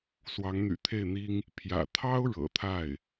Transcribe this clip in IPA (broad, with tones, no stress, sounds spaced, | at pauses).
s w ɑ˧˥ ŋ n̪ y̰˨˩ t̪ʰ e˥˩ ɪ̯ n̪ i˥ ŋ | pʰ j ä̰˨˩ t̪ʰ ɑ˥ ʊ̯ ɻ ɤ̰˨˩ t̪ʰ a˥˩ ɪ̯